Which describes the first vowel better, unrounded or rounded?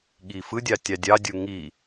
unrounded